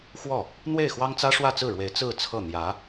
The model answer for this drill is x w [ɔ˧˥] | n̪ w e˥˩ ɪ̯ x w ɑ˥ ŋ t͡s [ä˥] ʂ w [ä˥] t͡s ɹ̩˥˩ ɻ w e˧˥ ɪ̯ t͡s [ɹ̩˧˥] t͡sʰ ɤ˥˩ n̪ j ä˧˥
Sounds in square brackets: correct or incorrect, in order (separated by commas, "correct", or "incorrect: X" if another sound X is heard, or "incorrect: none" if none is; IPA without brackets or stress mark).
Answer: incorrect: ɔ˥˩, correct, incorrect: ä˥˧, incorrect: ɹ̩˥˧